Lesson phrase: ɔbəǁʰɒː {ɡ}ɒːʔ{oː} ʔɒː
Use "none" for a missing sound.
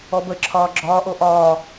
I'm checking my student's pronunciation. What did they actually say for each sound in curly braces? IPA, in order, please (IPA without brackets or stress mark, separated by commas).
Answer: ɡ͡ǁ, o